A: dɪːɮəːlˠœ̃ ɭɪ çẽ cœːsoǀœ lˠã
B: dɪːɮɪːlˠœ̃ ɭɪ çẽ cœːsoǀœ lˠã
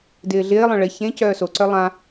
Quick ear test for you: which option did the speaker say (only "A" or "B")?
B